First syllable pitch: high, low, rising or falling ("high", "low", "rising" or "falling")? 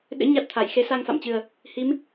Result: rising